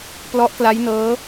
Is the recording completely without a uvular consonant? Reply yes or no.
yes